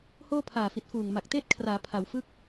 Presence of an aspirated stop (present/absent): present